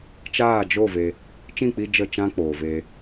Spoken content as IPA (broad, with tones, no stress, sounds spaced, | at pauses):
t͡ʃ aː˦˨ d͡ʒ o˦˨ v e˧ | t͡ʃ ĩ˦˨ k͡p i˧ d͡ʒ ə˦˨ t͡ʃ ã˦ k͡p oː˨ v eː˧